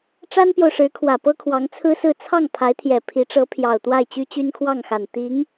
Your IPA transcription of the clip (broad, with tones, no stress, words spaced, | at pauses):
ʈ͡ʂa˥npjo˨ʊ̯ʂɻ̩˧˥kʰwä˨˩ pɤ˥kʰwɑ˧˥ŋt͡sʰɹ̩˥sɹ̩˥˧ t͡sʰɑ˥˩ŋ pʰa˧˥ɪ̯t̪ʰjɛ˨˩ pʰi˧˥ʈ͡ʂɤ˧˥pʰjɑ˨˩ʊ̯t̪wa˥˩ɪ̯ t͡ɕy˥t͡ɕy˥nkʰwɑ˥˩ŋxa˨˩n t̪i˧˥ŋ